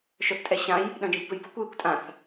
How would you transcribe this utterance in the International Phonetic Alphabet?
ʃ œ θ tʼ ɛ ɕ ã j | ɗ œ̃ d͡ʒ ẽ kʷ p ø j b o kʷ j e kʷ tʼ ã θ

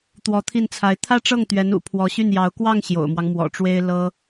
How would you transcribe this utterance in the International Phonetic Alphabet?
t̪ w ɔ˧˥ t̪ʰ i˥˩ n t͡sʰ a˧˥ ɪ̯ t̪ʰ ä˥˧ ʈ͡ʂ ɤ˥˩ ŋ t̪ ɥ ɛ˧˥ n ṵ˨˩ pʰ w ɔ˧˥ ɕ y˥˩ n j ɑ˧˥ ʊ̯ k w ɑ˥˩ ŋ ɕ j o̰˨˩ ʊ̯ m w ɑ˦ ŋ m w ɔ̰˨˩ ʈ͡ʂ w e˥ ɪ̯ l ɤ˥

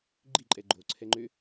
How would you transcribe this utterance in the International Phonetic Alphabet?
ɡ͡ǃ i ǃʼ ɛ ɡ͡ǃ o ǀʰ ɛ ŋ͡ǃ ø

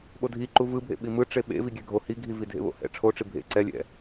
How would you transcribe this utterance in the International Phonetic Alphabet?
ɓ o dʱ i ǃ u v ɯ bʱ ḛ ɓ i m ɯ ʈ͡ʂ e ɓ ḛ v i ɡʲ ɛ ɡʱ o h i ɡʱ i v i dʱ ḛ β o̰ h ɛ̰ ʈ͡ʂʰ o ʈ͡ʂ i bʱ ḛ ǀ ɛ lʲ ɛ̰

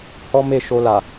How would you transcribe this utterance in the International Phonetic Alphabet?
h ɔ˦ m e˦˨ ʃ o˧ l a˨

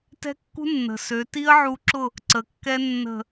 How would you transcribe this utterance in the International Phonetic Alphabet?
t ɛ̤˦ kː ṳ˦ nː ə̤˨ s ø˨˦ t i˦ ə̯ ʕ u˧ ǁ ʊ˦˨ | ǀ ə˨ kː ɛ˦ nː ə̤˦˨

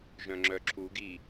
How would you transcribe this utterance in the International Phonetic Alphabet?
ʒ œ̃ ŋ͡ǁ œ ǁʰ u ɡ i

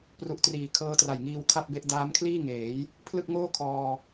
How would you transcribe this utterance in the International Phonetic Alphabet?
p r u˨˩ ʔ t r iː˩˦ kʰ ɤː˦˥ t r a˨˩ j ŋ iː˧ w kʰ a˥˩ p̚ b e˦˥ ʔ d aː˦˥ m kʰ l iː˥˩ ŋ eː˩˦ j | pʰ l ɯ˥˩ k̚ ŋ oː˥˩ kʰ ɔː˧

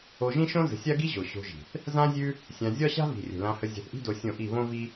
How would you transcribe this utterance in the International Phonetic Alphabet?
o˧ ʒ ĩ˦ ʃ õ˦ z ə̤˨˦ sʲ a˦ ɡ i˦ ʑ o˨ ɕ o̤˧ ʒ i̤˨ θ | z ã˦ zʲ ʉ˦ | sʲ ã˧ zʲ ɒ˦ ɕ a̤˦ v i̤˨ rʲ ə̤˨ l ã˧ h ə˧ zʲ a̤˧ θ ʔ i̤˦ d o˧ sʲ õ˦˨ ʔ i˦˨ β õ˦ v i˦

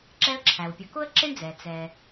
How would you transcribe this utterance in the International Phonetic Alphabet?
ǁ ɛ˦ ə̯ ǁʰ æ˩ w pʲ ʊ˨ k ʊ˥ ə̯ ǁ ɪ˥ ɳ d͡z ɛ˩ t͡s ɛ˨

